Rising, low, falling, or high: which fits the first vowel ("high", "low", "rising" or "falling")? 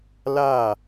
falling